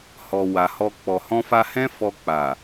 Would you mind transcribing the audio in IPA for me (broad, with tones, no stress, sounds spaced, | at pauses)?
h ɔ˨ w a˨ h ɔ˧ k͡p ɔ˨ h ɔ̃˧ f a˧ h ɛ̃˦ f ɔ˧ k͡p a˨